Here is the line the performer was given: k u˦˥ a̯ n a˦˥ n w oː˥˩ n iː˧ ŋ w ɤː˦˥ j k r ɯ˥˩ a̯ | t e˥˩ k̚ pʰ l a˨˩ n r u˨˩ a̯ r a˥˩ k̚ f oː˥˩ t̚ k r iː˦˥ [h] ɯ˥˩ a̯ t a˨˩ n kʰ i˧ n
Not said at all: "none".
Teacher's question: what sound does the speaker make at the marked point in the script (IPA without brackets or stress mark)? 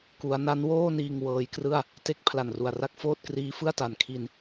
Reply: f